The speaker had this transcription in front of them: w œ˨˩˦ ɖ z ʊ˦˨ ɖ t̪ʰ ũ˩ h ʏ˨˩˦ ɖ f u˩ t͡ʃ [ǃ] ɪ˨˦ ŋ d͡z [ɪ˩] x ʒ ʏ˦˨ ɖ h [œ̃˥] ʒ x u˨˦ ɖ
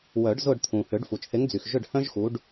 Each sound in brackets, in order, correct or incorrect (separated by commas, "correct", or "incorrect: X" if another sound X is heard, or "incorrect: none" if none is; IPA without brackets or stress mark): incorrect: θ, incorrect: y˩, correct